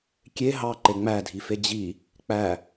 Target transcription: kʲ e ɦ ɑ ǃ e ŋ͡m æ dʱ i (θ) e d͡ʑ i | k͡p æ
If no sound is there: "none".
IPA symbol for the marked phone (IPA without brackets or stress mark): f